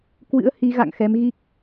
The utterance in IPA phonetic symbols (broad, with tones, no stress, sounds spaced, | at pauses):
k w ɨ̰˧˥ ə̯ h i˨˦ ɣ a̰˧˨ ŋ x ɛ˨˦ m ɣ i˦˥ k̚